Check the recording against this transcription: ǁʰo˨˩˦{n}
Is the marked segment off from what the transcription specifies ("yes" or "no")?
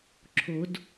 yes